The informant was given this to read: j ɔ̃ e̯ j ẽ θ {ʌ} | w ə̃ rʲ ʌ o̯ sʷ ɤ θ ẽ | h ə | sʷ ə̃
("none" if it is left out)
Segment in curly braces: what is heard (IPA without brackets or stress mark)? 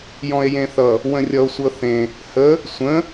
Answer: ʌ